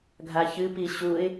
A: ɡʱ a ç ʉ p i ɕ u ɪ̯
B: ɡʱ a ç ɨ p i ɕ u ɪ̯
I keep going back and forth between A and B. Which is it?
B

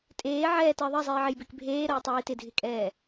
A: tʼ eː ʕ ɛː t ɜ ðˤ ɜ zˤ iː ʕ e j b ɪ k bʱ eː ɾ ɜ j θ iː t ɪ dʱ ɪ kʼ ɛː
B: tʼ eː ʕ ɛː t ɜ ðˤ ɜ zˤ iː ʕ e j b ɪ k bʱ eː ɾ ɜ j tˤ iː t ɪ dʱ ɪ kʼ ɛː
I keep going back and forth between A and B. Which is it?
B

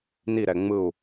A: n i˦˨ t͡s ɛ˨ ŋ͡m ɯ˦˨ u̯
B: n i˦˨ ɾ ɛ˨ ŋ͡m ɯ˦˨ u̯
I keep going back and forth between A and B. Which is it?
B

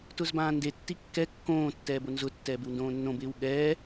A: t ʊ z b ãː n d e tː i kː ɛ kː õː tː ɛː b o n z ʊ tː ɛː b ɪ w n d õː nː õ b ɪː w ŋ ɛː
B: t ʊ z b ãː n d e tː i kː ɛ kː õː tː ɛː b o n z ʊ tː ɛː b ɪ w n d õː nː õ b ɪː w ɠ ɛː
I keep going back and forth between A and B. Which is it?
B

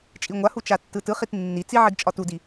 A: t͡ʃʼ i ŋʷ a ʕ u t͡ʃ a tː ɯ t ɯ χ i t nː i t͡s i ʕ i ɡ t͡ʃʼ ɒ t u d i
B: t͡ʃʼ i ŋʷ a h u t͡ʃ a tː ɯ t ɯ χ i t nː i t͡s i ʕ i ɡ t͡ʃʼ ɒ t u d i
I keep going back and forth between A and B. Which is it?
B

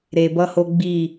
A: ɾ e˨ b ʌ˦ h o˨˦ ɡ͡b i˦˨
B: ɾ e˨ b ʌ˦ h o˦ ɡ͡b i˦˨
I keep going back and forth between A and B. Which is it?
B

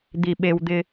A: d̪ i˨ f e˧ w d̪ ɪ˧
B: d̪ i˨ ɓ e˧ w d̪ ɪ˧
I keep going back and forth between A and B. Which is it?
B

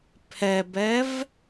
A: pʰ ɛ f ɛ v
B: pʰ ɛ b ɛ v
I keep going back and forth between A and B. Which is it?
B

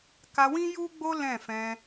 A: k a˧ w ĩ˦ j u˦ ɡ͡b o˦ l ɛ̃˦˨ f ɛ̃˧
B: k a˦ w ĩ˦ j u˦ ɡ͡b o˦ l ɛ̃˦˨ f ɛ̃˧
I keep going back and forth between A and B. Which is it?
A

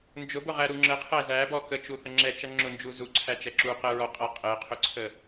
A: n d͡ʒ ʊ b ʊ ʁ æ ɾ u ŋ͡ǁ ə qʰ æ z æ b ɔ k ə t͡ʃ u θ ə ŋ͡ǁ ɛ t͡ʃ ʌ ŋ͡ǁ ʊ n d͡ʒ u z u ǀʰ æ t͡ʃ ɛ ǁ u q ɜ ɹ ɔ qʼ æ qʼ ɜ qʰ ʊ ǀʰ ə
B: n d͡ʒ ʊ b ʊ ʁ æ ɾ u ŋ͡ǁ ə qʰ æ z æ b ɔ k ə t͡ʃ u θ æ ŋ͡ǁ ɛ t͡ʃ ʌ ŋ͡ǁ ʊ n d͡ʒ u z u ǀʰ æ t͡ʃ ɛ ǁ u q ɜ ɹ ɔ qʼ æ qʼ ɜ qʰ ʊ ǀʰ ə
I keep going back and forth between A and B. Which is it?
A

